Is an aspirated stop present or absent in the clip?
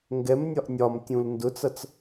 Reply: absent